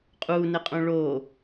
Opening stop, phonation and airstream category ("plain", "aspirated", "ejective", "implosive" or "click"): ejective